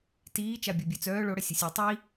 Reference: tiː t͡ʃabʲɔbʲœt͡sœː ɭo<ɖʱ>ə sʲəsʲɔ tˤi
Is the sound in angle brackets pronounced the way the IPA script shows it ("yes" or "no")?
no